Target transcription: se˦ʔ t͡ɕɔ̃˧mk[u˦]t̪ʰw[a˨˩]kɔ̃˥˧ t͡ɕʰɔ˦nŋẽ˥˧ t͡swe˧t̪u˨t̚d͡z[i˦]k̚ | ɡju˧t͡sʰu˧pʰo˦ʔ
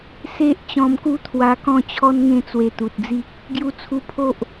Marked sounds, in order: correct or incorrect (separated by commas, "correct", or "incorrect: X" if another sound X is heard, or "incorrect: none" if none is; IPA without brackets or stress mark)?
correct, incorrect: a˧, correct